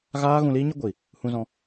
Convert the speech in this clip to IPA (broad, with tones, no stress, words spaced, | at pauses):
ɣaː˦ɣũ˧liː˦ ɲə˦ɡʷi˨ | hũ˧zɔ̃˧